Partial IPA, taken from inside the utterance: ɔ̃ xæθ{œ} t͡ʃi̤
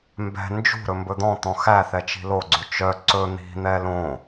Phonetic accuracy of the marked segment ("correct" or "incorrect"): incorrect